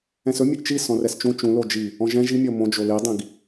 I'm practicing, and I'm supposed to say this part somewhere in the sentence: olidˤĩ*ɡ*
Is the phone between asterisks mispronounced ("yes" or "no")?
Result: no